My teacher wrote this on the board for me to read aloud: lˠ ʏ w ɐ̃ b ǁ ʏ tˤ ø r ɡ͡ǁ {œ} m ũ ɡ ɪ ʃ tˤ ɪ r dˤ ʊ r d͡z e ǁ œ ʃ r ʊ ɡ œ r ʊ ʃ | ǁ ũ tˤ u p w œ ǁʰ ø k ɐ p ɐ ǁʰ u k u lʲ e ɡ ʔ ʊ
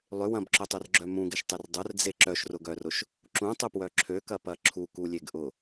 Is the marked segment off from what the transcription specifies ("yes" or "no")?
no